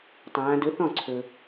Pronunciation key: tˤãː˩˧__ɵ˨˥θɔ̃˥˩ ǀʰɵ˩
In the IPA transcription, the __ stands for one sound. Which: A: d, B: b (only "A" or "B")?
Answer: A